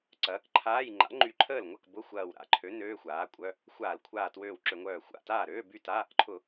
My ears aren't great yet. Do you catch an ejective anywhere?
yes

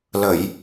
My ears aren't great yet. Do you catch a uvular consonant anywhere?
no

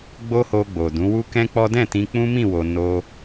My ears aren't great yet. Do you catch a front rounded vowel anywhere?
no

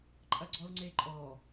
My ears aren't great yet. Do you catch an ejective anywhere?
yes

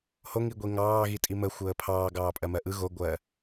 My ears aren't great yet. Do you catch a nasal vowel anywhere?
no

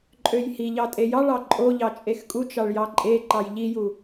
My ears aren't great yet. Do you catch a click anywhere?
yes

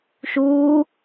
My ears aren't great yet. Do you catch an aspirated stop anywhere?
no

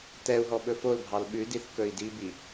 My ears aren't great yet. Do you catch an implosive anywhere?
yes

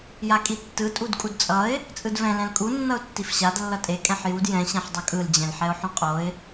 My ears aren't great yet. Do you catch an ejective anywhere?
yes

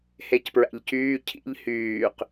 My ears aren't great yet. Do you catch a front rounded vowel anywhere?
yes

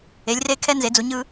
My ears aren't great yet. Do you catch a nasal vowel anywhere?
no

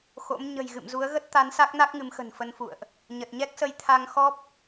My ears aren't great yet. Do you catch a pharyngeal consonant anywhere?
no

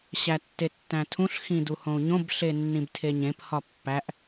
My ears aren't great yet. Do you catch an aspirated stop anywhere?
yes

